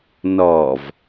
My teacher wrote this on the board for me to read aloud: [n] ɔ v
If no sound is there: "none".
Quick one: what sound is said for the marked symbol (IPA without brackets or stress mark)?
n